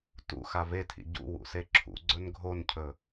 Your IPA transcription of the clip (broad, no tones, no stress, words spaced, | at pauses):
tṵ xavetʰḭ ɟṵ wṵseǁʰṵɡ͡ǀɵn ɡʱoncʰɵ